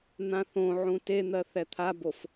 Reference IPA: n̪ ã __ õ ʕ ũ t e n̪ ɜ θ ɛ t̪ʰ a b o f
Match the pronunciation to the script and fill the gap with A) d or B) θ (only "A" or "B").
B